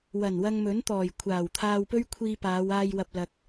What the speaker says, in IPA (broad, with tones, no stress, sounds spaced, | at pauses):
w ɐ˨˩ n w ɐ˧ ŋ m ɵ˨˥ n t̪ ɔː˨˩ j kʷʰ aː˨˩ w t̪ʰ aː˧ w p ɵ˥ ɥ kʷʰ iː˧ p aː˨˧ w aː˧ j w ɐ˨ p̚ l ɐ˨ k̚